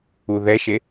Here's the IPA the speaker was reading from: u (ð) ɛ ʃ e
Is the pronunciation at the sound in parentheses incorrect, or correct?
correct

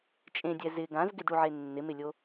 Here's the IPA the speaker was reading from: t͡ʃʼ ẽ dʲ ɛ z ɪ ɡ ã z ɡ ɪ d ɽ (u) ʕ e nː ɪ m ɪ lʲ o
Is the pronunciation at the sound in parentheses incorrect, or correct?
correct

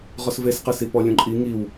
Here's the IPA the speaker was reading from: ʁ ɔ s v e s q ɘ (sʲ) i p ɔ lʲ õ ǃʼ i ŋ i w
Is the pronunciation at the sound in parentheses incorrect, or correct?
incorrect: s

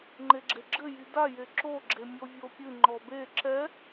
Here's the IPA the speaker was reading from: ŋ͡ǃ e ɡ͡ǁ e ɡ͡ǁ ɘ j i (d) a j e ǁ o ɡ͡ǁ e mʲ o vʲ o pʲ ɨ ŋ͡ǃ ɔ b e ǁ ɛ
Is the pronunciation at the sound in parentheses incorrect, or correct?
correct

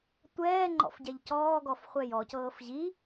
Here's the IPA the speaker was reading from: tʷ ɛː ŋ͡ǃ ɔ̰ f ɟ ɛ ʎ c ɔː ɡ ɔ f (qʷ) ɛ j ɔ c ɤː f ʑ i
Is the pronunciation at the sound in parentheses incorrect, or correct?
incorrect: χʷ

